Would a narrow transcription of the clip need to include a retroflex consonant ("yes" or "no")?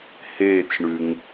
yes